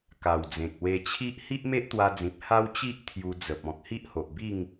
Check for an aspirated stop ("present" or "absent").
present